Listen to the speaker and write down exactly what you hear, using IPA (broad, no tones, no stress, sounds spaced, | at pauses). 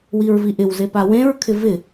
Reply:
w i ɹ v i ʔ ɪ w z e p a w ẽ ɹ kʰ ɪ v ɪ